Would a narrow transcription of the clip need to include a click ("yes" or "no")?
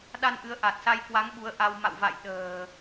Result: no